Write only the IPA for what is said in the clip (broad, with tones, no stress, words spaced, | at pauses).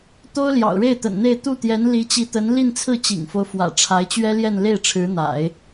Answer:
t̪o˥ʊ̯ljɑ̰˨˩ʊ̯ɻe˥˩ɪ̯ t̪ə̰˨˩nn̪e˥˧ɪ̯ t̪u˥˩t̪jɛ˧˥n li˧˥t͡ɕi˧˥t̪ə˧˥n li˥˧nt͡sʰɹ̩˥˩t͡ɕḭ˨˩ŋfo˦ʊ̯ fwä̰˨˩ ʈ͡ʂʰa˧˥ɪ̯t͡ɕɥɛ˥ljɛ˥˧n le˥˩ɪ̯ʈ͡ʂʰɻ̩˧˥n̪a̰˨˩˦ɪ̯